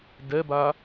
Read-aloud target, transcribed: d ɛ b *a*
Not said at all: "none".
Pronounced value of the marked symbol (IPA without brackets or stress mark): a